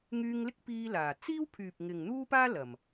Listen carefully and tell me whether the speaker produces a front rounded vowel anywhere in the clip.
yes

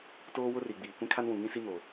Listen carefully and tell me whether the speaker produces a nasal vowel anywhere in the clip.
yes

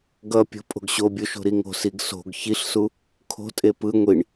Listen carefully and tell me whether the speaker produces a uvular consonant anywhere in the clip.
no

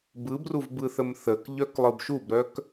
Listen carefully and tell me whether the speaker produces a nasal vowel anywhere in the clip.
no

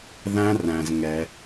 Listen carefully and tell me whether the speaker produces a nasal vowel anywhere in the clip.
yes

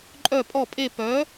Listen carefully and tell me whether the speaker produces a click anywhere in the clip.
yes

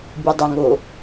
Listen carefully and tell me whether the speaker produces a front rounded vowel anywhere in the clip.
yes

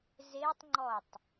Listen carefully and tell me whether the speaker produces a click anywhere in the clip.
yes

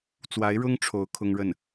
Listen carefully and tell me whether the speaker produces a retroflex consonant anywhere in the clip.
yes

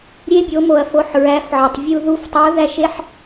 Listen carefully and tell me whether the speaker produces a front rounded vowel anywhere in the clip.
no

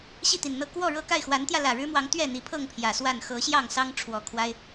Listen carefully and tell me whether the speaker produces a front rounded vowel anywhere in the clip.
no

